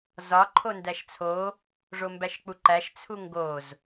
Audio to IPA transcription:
zɒ ǃʰondæʃt͡sʰo | ʐombæʃk͡puǃæʃ t͡sʰuŋɡoz

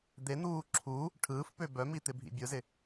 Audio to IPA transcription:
d̪en̪uː ǁʰu | ʈʰɯːfpø bœmit̪ɪbʱḭ bʲɯzɪ

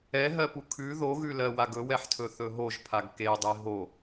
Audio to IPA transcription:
ɛɦɜpu kʰʉ ðoɣʉlɜ waɡɵwɛħtʰɵ θɵɦoʒpʰaɡ kedˤe ɦo

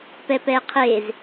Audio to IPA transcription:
pɛpɛqʰez

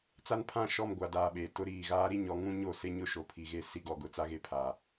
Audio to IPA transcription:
t͡sa˦npʰã˦˨ʃɔ˦˨m ɡʷa˨daː˨ ɓe˨tʊ˦ɾiː˦˨ ɣaː˦ɾi˦ɲɔ˨˦ ŋũ˦ɲo˦˨se˦ ɲʊ˦ʃo˨pʰi˨ɣe˦ si˦ɡɔ˨ɡʊ˦ t͡sa˦ɣe˦pʰa˨

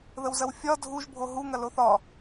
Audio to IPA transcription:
ðəwzɐwfʲɒ dʱuʒ bʱoɦu ŋɐloθɒ

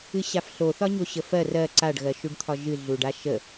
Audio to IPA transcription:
ɨɕafɬoθɒ ɲoɕəfɜr ɜ ǀaɖɣɜʃuɖ t̪ʰɒʒɨɮuɖa ʃə

